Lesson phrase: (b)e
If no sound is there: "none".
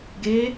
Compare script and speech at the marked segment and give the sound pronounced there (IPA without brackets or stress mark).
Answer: ɡ